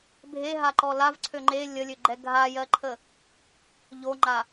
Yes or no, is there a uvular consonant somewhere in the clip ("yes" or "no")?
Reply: no